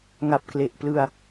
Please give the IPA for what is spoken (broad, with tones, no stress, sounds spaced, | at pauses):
ŋ a˨˩ p̚ k l e˨˩ ʔ p l ɯ˧ a̯